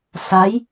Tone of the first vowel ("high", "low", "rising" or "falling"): rising